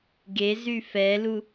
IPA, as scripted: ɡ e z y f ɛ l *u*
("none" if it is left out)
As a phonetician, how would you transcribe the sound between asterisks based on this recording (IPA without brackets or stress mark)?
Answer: u